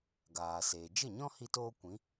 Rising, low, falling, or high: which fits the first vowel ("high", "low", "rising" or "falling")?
low